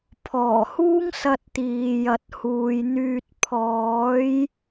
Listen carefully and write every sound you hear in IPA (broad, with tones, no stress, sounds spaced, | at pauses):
pʰ ɔː˨˩ h uː˥ ŋ s ɐ˧ t̚ t̪ iː˨ j ɐ˨ t̚ h uː˨ j n̪ yː˧ t̚ pʰ ɔː˨˧ j